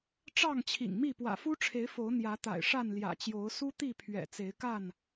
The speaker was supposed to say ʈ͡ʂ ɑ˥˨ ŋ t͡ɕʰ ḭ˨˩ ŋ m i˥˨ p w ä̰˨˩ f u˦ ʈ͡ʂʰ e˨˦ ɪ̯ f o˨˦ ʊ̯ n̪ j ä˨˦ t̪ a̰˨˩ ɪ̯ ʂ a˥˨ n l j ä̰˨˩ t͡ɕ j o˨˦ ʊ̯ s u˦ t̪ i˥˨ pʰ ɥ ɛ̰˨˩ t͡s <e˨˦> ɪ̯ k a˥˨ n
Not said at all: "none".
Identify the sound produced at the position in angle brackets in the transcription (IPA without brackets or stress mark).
e˨˦